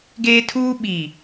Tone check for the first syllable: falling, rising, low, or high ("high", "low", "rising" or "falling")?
high